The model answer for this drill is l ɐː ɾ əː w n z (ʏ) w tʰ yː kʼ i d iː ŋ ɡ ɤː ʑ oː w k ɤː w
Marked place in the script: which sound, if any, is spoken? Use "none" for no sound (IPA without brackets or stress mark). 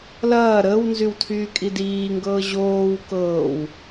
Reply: y